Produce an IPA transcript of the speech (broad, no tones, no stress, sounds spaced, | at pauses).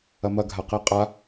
ɐ m ɐ ɡʱ a q i qʼ a